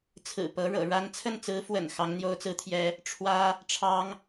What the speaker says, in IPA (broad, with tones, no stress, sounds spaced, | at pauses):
t͡sʰ ɹ̩˨˩ p ɤ˧˥ ɻ ɤ̰˨˩ ɻ a˥ n t͡sʰ ə˥˩ n t͡s ɹ̩˧˥ f w ə̰˨˩ n x ɑ˧˥ ŋ n̪ j o˥ ʊ̯ t͡s ɹ̩˥ t̪ʰ j ɛ˥ | ʈ͡ʂʰ w ä˥ | ʈ͡ʂʰ ɑ˥ ŋ